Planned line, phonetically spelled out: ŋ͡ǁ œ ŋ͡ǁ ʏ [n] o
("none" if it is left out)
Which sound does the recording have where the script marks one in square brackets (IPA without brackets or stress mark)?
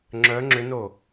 n